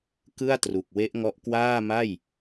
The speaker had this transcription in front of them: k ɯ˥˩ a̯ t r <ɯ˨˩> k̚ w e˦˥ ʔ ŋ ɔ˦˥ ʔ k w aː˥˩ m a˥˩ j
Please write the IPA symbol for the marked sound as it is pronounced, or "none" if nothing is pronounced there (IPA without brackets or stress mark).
u˨˩